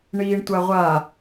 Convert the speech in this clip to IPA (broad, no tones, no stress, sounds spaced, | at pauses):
ɳ iː ɳ tʷ a ʁʷ a